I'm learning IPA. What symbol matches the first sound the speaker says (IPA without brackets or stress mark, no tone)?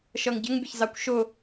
ʃ